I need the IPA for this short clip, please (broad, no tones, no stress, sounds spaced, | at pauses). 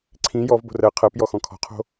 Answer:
ǀʰ ĩ j ɔ v b o̤ r ɜ qʰ ɜ p j ɔ x ɔ̃ kʰ ɔ̤ qʰ o̤